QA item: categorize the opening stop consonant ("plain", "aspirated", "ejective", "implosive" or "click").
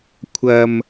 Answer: aspirated